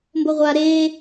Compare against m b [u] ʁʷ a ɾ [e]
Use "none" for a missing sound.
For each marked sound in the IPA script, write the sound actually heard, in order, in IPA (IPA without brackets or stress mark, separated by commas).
o, e